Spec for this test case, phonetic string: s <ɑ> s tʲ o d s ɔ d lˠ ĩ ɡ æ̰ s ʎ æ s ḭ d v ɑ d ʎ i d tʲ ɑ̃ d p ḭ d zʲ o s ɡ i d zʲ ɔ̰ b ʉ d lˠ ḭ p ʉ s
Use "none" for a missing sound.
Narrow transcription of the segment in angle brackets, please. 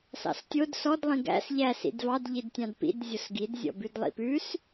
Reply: ɑ̰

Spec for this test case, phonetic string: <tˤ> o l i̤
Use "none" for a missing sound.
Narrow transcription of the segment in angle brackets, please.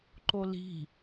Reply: ǃ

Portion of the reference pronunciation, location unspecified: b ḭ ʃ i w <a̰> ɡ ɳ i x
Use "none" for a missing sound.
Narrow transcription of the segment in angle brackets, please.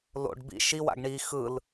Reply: a̰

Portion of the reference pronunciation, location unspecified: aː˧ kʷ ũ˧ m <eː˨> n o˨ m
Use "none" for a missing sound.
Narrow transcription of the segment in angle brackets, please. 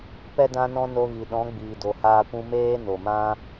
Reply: eː˦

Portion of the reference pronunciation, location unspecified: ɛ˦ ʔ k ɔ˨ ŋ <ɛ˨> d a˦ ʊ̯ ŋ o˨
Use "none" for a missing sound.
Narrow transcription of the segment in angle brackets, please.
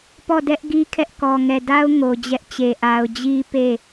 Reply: ɛ˨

